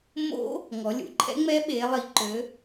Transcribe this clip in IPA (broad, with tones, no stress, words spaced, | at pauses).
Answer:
mo̰˦˥ | ŋɔ˩˧lʲṵ˩˧ǃʰɛ̰˦˥ŋ͡mɛ˦˥ ɓe˩˧lˠi˩˧ ǃø˩˧